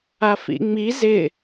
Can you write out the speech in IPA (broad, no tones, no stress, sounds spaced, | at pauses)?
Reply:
a f ḭ ŋ͡m i z ɪ